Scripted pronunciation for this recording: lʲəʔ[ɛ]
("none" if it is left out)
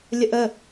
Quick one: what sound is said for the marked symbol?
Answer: ə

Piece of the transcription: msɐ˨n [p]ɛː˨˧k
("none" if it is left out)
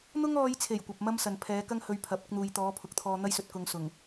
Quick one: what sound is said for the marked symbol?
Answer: pʰ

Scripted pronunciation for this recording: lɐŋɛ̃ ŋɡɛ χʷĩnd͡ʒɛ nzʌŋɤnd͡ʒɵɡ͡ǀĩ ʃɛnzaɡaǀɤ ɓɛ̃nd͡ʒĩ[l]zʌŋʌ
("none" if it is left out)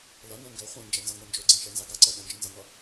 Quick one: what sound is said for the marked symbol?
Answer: n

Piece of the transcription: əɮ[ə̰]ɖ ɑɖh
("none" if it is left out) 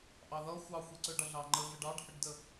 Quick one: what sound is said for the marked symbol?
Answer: ə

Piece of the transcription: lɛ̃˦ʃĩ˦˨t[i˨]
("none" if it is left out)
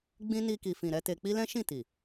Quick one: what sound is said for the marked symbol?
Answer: i˨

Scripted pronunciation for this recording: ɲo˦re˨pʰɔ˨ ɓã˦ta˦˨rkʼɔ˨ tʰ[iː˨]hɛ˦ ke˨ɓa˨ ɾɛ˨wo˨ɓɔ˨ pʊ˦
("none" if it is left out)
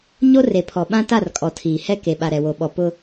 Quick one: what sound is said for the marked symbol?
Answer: iː˨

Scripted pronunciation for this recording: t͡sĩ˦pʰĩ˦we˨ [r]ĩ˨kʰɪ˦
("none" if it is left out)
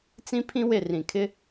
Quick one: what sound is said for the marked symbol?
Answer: r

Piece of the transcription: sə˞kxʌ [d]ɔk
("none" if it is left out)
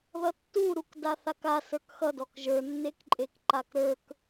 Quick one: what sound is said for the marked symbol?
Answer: d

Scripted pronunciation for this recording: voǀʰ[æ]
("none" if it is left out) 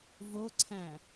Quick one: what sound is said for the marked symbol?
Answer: æ̃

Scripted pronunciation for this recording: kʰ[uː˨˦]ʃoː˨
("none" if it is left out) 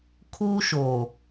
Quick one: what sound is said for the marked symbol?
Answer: uː˦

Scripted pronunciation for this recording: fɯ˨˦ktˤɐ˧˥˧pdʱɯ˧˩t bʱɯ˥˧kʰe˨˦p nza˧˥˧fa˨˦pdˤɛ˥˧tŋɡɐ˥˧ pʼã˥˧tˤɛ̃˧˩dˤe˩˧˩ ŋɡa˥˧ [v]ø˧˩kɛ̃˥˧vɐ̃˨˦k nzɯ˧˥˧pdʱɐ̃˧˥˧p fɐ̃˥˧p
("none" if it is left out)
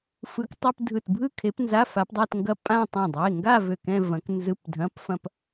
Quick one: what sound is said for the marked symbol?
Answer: v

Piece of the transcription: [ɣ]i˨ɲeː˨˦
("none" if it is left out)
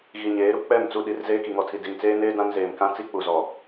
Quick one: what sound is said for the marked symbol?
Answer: ɣ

